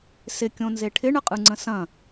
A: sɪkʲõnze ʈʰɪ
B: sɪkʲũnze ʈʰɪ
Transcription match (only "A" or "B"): A